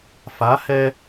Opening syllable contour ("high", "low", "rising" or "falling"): rising